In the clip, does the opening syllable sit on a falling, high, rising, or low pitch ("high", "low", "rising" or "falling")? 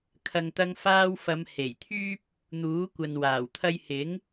low